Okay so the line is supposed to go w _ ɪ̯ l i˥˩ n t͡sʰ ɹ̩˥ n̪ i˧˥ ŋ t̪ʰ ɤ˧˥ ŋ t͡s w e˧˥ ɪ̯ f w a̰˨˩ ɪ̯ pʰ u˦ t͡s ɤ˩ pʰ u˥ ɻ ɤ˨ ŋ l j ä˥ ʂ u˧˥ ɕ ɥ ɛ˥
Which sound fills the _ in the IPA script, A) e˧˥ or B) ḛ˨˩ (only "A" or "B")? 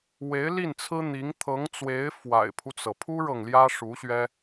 A